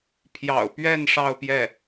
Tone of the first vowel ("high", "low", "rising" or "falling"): low